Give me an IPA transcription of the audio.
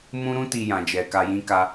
m ũ˧ ɾ ũ˧ t i˨ j ã˨ d͡ʒ ɛ˨ k a˨ j ĩ˧ k a˧

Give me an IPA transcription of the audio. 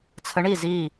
t͡sʰ ə˨˦ ɳ i˧˩ z i˧˩

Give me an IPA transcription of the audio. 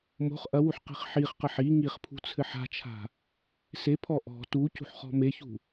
m o̤ χ ʔ ɐ w u ħ q i̤ χ ħ i χ q ɐ ħ i ŋ i χ pʰ ṳ t͡sʰ ɘ ħ a̤ t͡ʃʰ a̤ | s e pʰ ɔ ʔ ɔ̤ t u c ṳ ħ χ ɔ̤ m e ç ṳ

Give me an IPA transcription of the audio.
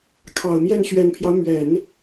kʰ ɑ˨˩ ʊ̯ m j ɛ˥˩ n ɕ ɥ ɛ˨˩ n pʰ j ɑ˦ ʊ̯ m ɥ ɛ˨˩˦ n

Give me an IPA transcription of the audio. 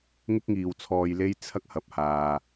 ŋ ɪ˥ k̚ ŋ iː˨ w t͡sʰ ɔː˧ j l e˥ j t͡sʰ ɐ˥ k̚ h ɐ˨ p̚ h aː˨

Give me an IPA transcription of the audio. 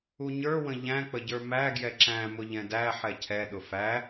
u ɲ ə˞ w ə̃ ʎ æ̃ k͡p ə ɟ ə˞ m æ ɡ j ɛ ǁ æ̃ m ʊ ʎ ɛ̃ d æ ħ ɛ cʰ ɛ ɗ ʊ f æ

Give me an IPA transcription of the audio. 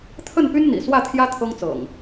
t̪ʰ ə˥˨ n p y˦ n n̪ ḭ˨˩ s w ä˥˨ t̪ʰ j ä˦ t̪ʰ ɤ˦ ŋ t͡s ɤ̰˨˩ ŋ

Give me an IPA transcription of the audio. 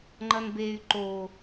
ŋ͡ǃ ʌ n b e y̯ ǃ o

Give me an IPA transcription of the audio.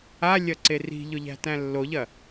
a lʲ ɐ ǀ e r i̤ ʎ ʊ ʎ æ̤ t æ̃ lː o ʎ ɐ

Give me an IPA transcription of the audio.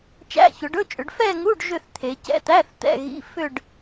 t͡ʃ æ̰˧˥˧ ç ɵ˩˧ ɖ ɵ˧˥˧ t͡ʃʼ ʏ˩˧ ɖ f ɛ˥˧ ŋ u˧˥˧ ɖ ʒ ʏ˥˧ θ t̪ʰ e˩˧ c ɛ̰˧˥˧ t̪ æ˧˥˧ θ t̪ ɛ̰˧˥˧ ɣ ḭ˧˥˧ f ʏ˥˧ ɖ

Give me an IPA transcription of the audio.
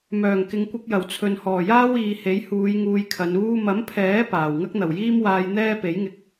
m œː˨˩ ŋ k ɪ˨ ŋ kʷ ɐ˧ k̚ j ɐ˨˩ w t͡sʰ ɵ˨ n h ɔː˨˩ j aː˥ w iː˨˧ h e˨˥ j h uː˨˧ j ŋ uː˧ j kʰ ɐ˨˧ n uː˥ m ɐ˨˥ m pʰ ɛː˨˥ p aː˨˩ w ŋ ɐ˥ k̚ n̪ ɐ˨˩ w j iː˥ m w aː˧ j n̪ ɛː˥ p e˨˥ j ŋ ɪ˧ k̚

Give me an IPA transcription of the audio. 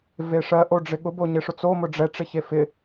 v e ʂ ɜ ʔ o ɖ͡ʐ ɪ ɠ ʊ b o ɲ ɪ ʂ ʊ t͡s o m ʊ ɖ͡ʐ ɛ ʈ͡ʂ ɪ ç e f ɪ

